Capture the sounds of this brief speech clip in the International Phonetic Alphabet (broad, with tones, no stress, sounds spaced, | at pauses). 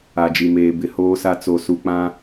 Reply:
a˨ d͡ʒ i˨ m eː˨ b ɪ˨ h oː˦ s a˦ t͡s o˨ s u˨ k͡p ã˦